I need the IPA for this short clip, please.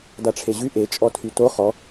d a ʈ͡ʂʰ e ʑ y ʔ e t͡ʃʼ ɔ tʰ y t o χ ɔ

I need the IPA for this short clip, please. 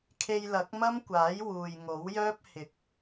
kʰ e˧ j l ɐ˨˥ k̚ m ɐ˥ m kʷ aː˨˥ j w uː˨ j ŋ o˨˥ w j œː˥ p̚ h ɪ˨˥ k̚

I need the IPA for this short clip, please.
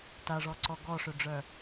t a ʐ ɔ ǀ ɔ ɡ ɔ ʂ ø ɖ͡ʐ œ

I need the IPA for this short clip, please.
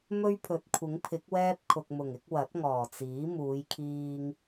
m ɵ˥ ɥ pʰ ɵ˨˥ t̚ kʷʰ ɪ˨˥ ŋ pʰ ɪ˨˥ k̚ w ɛː˥ p̚ kʰ ʊ˨ k̚ m ʊ˨˩ ŋ ɪ˨˥ k̚ w ɐ˨˥ t̚ ŋ ɔː˨˩ t͡s iː˨˥ m uː˨˧ j kʰ iː˧ ŋ

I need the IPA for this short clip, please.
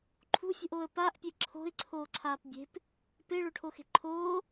ǃʰ ṳ fʲ ṳ ʔ oː ə̯ p a ʔ pʲ e ǁʰ o̤ ɪ̯ ǀʰ oː ǀʰ aː p bʲ e̤ p | p e ɭ o ʈʰ o x e̤ ǃʰ oː

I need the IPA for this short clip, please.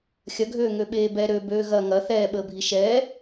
xʲ ɐ ɡʱ øː ŋ ø ɓ eː b ɛ ɾ ø b øː ɣ ɐ ŋ ɐ θ ɛː ɓ əː bʱ i ʃ ɛː

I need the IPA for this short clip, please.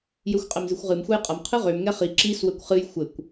j ø xʷ qʼ ɛ m z ɨ xʷ ʁ ɨ m xʷ ɐ j qʼ ɐ m qʰ ɨ ʁ ø m ŋ ɛ χ i ǁ i s w ɘ kʷ χ ɨ j xʷ ɘ kʷ

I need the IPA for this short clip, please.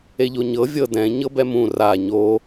e ʎ o ɲ ɤ vʲ ɤ d ɛ̃ ɲ ɤ b ɛ m ũ r a ɲ o

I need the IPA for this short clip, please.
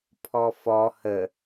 pʰ ɔ f ɔ h ə

